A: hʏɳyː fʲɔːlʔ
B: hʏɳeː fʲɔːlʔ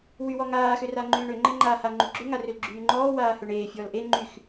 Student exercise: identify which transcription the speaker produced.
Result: B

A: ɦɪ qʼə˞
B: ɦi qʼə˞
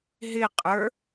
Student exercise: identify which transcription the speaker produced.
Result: A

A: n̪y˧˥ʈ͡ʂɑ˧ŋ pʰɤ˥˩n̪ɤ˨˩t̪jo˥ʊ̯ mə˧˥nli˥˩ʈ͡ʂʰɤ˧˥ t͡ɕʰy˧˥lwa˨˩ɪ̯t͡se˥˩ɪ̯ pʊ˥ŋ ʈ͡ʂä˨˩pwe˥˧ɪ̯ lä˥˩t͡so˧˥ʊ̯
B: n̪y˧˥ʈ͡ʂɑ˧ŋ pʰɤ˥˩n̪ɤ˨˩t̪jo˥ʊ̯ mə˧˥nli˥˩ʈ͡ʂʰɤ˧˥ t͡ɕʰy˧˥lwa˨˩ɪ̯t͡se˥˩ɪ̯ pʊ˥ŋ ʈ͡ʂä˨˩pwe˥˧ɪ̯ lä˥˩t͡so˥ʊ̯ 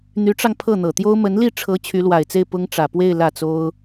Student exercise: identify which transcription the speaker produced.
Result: B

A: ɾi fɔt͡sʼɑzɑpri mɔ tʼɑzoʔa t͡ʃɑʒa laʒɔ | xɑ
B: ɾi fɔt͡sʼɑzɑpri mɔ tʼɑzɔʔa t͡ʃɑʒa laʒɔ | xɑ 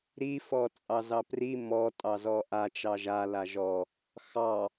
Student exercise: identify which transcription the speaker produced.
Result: B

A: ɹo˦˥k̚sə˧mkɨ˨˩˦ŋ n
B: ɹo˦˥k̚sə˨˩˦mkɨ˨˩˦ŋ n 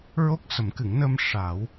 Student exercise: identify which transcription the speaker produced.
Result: B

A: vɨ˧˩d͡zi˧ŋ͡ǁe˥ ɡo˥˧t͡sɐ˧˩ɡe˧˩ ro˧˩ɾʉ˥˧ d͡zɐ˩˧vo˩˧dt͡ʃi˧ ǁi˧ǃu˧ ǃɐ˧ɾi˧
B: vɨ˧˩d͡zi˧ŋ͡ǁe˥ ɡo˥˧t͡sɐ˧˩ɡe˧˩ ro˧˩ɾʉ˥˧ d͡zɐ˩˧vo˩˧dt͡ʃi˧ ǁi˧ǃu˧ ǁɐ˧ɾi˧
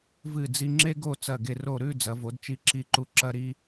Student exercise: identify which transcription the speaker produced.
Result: B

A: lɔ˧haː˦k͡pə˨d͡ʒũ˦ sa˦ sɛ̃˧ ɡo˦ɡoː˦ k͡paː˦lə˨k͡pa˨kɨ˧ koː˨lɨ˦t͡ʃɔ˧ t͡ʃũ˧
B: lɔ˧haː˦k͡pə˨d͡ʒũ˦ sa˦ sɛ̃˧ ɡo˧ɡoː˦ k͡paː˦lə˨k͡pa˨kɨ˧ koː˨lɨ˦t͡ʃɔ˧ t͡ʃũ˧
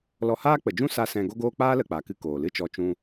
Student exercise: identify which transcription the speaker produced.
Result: A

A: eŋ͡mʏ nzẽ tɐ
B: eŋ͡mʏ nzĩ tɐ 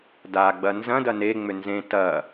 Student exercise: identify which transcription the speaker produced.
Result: A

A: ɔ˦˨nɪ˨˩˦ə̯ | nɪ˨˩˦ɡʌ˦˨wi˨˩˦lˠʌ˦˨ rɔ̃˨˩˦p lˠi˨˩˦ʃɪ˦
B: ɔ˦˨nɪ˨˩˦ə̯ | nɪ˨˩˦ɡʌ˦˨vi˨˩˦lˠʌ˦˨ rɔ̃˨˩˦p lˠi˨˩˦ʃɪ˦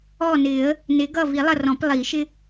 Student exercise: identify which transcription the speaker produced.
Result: B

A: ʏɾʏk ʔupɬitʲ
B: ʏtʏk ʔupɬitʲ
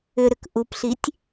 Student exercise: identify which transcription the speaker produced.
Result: A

